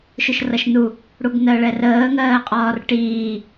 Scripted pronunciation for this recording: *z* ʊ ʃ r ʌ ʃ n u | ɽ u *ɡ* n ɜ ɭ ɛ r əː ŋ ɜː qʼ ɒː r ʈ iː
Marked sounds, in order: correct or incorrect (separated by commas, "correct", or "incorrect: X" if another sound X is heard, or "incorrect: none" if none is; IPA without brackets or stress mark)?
incorrect: ʃ, correct